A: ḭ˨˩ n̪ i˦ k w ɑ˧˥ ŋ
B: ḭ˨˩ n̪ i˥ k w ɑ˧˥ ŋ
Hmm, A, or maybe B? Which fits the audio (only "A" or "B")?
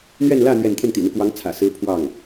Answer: A